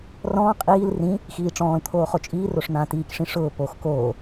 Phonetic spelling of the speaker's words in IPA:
r ɔ̃ː qʼ iː l r ĩ | x iː ʈ͡ʂ ɔ̃ː l t̪ʰ oː χ o t͡ʃʼ iː r o ʂ n̪ ãː t iː k ʂ ĩ ʂ ʊː p o x k oː

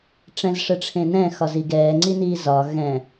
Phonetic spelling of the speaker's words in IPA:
ʈ͡ʂ ɛ̃ z ʂ ə ʈ͡ʂʰ ẽ n ɛ̃ x ɒ z i ɡ ɛː ŋ͡ǀ i n iː z ɒ ɣ ɛ̃

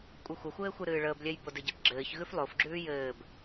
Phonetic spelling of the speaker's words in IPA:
kʷʼ ɨ xʷ ə xʷ ɘː xʷ ɨ ɾ ɨː ɭ əː b lʲ ɛ j b o d ɨ ɟ ɛ b ɡ͡ǁ ɘː ç ɣ ʉ f lˠ o f ɡ͡ǁ ʉː j ɘː b

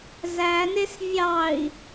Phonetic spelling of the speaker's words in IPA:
z æ n e s vʲ ɑ i̯

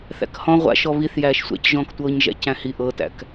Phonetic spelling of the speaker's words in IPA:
θ æ̰ k h ɔ̃ ʁʷ a̰ ʃ ɔ β i θ j æː ʃ sʷ æ̰ c ʒ ɔ̃ː k tʷ ɤː ɲ ʒ æ̰ c æ̃ h i ʔ ɤ t æ̰ k

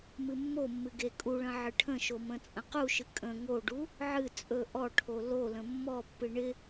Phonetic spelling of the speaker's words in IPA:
m ɨ mː o mː ɨ ɡ e kʼ u ɭ ə̃ ʕ ɨ ʈʰ ə̃ ʃ o m ə̃ t͡sʼ ə̃ q u ʃ ɨ kʼ ə̃ ŋ o ɖ u | ʕ ɨ t͡sʼ ɵ ʔ ɔ ʈʰ o l o l ə̃ mː ɔ pː ɨ ɳ ɪ

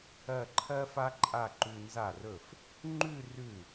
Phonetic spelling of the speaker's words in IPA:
ɜ˥˧ ǃʰ ɜ˥ f a˥ ǃʼ a˥˧ ǃ ʉ˧ n z a˥˩ r ɵ˥˩ f | ŋ͡ǃ ʉ˥˧ r ʉ˥˩

